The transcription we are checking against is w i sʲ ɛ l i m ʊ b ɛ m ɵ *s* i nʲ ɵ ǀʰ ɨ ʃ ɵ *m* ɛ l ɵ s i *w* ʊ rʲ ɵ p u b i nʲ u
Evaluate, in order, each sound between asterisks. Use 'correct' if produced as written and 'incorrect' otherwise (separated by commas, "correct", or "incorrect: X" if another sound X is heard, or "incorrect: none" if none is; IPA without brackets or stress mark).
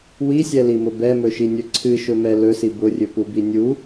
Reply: incorrect: ʃ, correct, incorrect: b